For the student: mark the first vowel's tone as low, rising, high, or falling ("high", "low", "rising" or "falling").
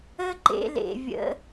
high